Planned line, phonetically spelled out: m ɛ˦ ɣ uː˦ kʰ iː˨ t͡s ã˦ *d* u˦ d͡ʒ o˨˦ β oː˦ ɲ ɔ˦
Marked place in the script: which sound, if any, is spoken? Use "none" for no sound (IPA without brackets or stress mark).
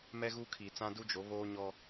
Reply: d